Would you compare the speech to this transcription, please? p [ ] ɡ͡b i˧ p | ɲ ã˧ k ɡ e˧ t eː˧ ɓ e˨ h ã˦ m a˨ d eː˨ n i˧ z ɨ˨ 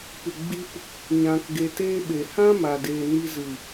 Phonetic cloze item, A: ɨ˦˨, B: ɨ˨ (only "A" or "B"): B